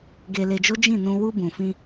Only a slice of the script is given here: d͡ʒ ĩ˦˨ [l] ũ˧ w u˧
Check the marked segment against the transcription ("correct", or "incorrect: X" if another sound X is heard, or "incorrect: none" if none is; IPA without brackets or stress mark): incorrect: n